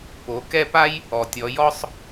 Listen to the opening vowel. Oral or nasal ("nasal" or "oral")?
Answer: oral